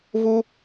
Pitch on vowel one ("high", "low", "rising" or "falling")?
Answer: high